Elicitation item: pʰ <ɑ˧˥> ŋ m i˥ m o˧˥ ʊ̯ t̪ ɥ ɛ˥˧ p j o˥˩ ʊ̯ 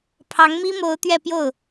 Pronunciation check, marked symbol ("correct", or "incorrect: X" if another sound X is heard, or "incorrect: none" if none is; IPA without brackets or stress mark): correct